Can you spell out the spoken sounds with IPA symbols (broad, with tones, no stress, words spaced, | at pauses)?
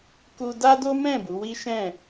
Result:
ku˧ da˦do˦ mɛ̃˦˨ bu˨˦wi˦ʃɛ̃˦˨